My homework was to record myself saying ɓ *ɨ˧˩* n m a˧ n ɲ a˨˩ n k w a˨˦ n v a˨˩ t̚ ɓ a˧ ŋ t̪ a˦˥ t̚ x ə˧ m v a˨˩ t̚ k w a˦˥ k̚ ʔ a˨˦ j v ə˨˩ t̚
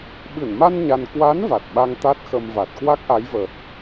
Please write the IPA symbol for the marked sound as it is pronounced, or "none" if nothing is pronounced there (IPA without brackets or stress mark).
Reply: ɨ˧˩